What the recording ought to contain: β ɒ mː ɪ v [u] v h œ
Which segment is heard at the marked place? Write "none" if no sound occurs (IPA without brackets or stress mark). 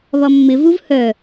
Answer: u